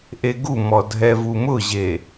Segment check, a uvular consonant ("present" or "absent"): absent